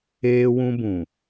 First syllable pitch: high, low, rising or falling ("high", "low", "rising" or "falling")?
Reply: high